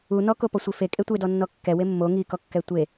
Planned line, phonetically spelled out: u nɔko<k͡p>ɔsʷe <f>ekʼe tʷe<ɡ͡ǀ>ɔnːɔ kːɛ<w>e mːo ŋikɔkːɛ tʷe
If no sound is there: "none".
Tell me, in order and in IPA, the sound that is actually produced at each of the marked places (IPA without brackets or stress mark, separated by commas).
p, f, d, w